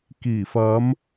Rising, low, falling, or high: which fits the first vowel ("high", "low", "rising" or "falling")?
low